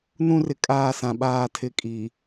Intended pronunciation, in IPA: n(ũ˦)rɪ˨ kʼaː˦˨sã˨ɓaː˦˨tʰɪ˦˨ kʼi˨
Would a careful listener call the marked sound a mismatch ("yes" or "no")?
no